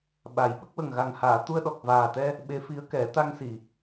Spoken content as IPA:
ɓ a˨˩˦ j ɓ ə˦˥ k̚ w ə˨˩ ŋ ɣ a˨˩ ŋ h aː˨˩˨ t̪ u˧ ə̯ ɗ ɔ˨˩ k̚ v aː˨˩ t̪ ɛ˧ | ɓ e˧˥ f i˧˥ ə̯ k ɛ˨˩˦ t̪ a˧ ŋ s i˨˩˨

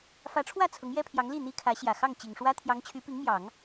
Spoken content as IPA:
f ä˧˥ ʈ͡ʂʰ w ä˥˩ t͡sʰ ʊ˧˥ ŋ j ɛ˥ pʰ j ɑ˧˥ ŋ l i˥˩ n̪ i˥ kʰ ä˧˥ ɕ j ä˨˩ x ɑ˥˩ ŋ t͡ɕ i˨˩ ŋ ʂ w ä˥ t̪ʰ j ɑ˧˥ ŋ t͡ɕʰ y˧˥ p i˧˥ ŋ m j ɑ˨˩˦ ŋ

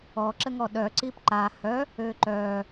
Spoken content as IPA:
ɔ ǁ ə ŋ ɔ ɗ œ ǀ i p ǃ a h œ | ø ǃ œ

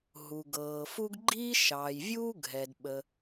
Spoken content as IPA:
ɦ u˩ ɡ ɤː˩ f u˥ ɡ ɡ͡ǃ iː˥ ʃ ɑː˩ j vʲ uː˥ ɡʱ ɛ˩ d ɓ ə˩

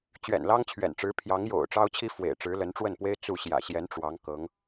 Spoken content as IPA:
t͡ɕ ɥ ɛ̰˨˩ n l ɑ˥ ŋ t͡ɕʰ ɥ ɛ̰˨˩ n ʈ͡ʂ ɻ̩˧˥ pʰ j ɑ˧˥ ŋ j o̰˨˩ ʊ̯ ʈ͡ʂ ɑ˥ ʊ̯ t͡ɕʰ i˥ f w ḛ˨˩ ɪ̯ ʈ͡ʂ ɻ̩˧˥ l ə˧˥ n ʈ͡ʂ w ə˥˩ n p w e˥ ɪ̯ t͡s u˥˩ ɕ j ä̰˨˩ ɕ j ɛ˧˥ n ʈ͡ʂ w ɑ˧˥ ŋ k ɤ˧˥ ŋ

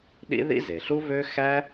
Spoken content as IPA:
ɗ ḭ˥ ð ḭ˥ z e˩ ɬ u˥ v ø˥ x æ˥

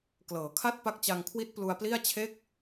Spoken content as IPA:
k l ɤː˩˦ kʰ a˥˩ t̚ p a˦˥ k̚ t͡ɕ a˧ ŋ kʰ w i˦˥ t̚ p l u˧ a̯ p l i˥˩ a̯ t͡ɕʰ e˥˩ k̚

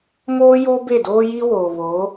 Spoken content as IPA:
m oː˦ j o˦ b e˦˨ d oː˦ j i˦ w oː˨ β oː˨˦

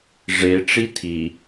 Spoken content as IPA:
ʐ e ʈ͡ʂ i tʰ i

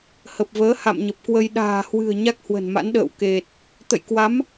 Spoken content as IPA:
h ə˨˩ p̚ v əː˨˦ h a̰˧˨ m ɲ ə˨˩ p̚ k w ə˧ j ɗ a̤ː˨˩ h w ɨ̤˨˩ ə̯ ɲ a˦˥ k̚ h w ə̤˨˩ n m a̰˧˥ n ɗ ə̰ː˧˨ w k e˨˩ t̚ | t̪ ə̰˧˨ j k w a˨˦ m

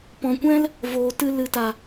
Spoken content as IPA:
p ɔ̃˨ kʷ ɛ̃˦ l | v oː˨ t ɨ˧ l ɨ˨ t a˨

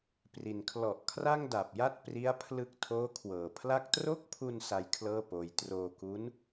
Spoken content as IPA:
p r i˩˦ n kʰ l ɔ˨˩ ʔ kʰ r a˥˩ ŋ d a˨˩ p̚ j a˥˩ t̚ p r i˦˥ a̯ pʰ l ɯ˦˥ k̚ tʰ oː˦˥ kʰ w ɤː˨˩ pʰ l a˥˩ k̚ t r o˦˥ k̚ pʰ u˧ n s a˦˥ j kʰ l ɤː˥˩ p oː˧ j t r oː˧ k u˦˥ n

